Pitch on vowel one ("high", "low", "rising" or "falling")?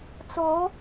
rising